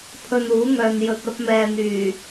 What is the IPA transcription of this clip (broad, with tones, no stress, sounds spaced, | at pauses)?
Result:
pʰ ɵ˧ n uː˨˥ ŋ œː˨ n j ɵ˨ t̚ ɐ˧ p̚ m ɛː˨ n̪ yː˨˩